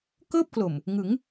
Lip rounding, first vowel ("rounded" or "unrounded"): unrounded